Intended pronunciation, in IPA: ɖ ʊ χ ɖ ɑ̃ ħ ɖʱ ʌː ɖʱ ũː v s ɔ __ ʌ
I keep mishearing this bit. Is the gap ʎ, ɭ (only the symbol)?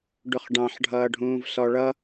ɭ